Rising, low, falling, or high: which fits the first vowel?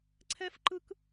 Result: high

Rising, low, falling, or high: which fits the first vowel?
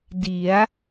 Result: rising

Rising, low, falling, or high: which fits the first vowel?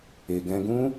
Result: low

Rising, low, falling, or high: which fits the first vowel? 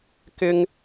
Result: high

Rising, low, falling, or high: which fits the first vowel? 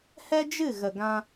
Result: high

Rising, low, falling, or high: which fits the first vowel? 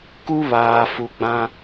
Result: high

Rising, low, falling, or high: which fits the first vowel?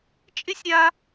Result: high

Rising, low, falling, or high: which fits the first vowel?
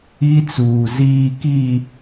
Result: high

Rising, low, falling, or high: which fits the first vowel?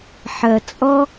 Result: low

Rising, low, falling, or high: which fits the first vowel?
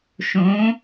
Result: rising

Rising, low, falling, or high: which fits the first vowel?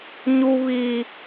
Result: high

